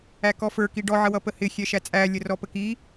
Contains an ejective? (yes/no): yes